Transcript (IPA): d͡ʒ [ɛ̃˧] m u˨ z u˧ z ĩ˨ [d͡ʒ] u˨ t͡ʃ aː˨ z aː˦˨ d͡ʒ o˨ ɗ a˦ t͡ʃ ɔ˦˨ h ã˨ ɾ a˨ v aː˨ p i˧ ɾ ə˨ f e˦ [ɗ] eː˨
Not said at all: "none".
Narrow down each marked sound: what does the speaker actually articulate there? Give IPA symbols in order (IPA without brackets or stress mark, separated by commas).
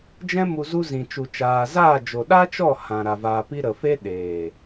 ɛ̃˧, t͡ʃ, ɗ